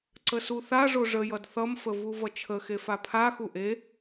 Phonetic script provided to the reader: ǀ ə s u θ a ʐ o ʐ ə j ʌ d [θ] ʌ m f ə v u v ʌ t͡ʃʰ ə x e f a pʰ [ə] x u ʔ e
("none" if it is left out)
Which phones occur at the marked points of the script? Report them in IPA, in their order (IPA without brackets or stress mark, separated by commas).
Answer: θ, a